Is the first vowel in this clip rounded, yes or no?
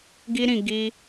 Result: no